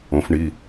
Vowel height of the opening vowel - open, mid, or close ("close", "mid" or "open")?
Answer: mid